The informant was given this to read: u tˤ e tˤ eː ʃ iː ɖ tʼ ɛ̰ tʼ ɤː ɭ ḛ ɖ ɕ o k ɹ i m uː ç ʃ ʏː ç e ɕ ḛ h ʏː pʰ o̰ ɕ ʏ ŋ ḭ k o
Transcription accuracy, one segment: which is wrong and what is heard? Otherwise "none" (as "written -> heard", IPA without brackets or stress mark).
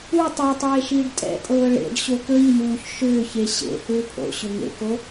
ḭ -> ḛ